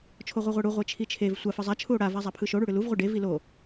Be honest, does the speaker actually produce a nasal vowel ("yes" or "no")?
no